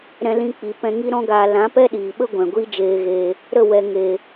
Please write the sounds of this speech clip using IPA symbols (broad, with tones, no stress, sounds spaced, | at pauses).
ɾ ɛ̃˧ l ĩ˧ k͡p i˨ p ɛ̃˧ ŋ i˦ ɾ ɔ̃˦ ɡ aː˧ l ã˨˦ p ɛ˦ ɗ iː˨ ɓ ə˦ ɡʷ ɛ̃˨ ɡʷ iː˦ d͡ʒ eː˧ ɣ eː˧ | ɾ ə˦˨ w ɛ˨ ŋ e˨